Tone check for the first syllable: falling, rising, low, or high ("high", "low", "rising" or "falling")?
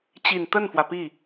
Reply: low